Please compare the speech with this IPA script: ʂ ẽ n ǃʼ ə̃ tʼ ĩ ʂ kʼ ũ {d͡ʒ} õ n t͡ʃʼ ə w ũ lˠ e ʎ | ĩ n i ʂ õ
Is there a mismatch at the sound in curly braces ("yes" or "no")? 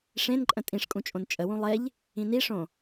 yes